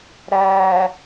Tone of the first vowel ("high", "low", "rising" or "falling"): low